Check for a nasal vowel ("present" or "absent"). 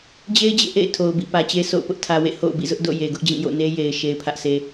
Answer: present